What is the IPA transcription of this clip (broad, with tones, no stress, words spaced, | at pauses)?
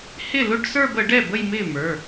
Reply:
hɪ˥˩lʊ˥˧ɖsə˞˥˧b ə˨˩˦ɖɛ˥˩bə˥˧j mɪ˥˩mə˞˩˧˩